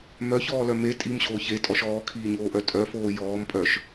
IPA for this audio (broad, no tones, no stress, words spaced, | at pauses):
mœçɔːlœ me tʼimɕoː çetʼɔʃ ɔːkʰiːɲoːʔœ tʼœfoː jɔːmpʼœʃ